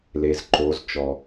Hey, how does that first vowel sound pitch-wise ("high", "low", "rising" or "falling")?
low